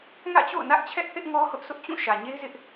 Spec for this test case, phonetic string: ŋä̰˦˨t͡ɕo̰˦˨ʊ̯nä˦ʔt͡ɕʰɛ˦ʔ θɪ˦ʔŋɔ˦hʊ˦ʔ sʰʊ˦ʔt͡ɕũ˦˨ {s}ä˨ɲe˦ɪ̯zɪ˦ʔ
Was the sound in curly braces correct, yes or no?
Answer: no